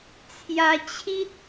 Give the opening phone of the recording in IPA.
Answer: t͡sʰ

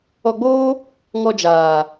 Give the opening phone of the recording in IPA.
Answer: ɔ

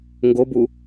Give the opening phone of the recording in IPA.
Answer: ŋ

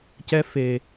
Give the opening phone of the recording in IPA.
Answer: c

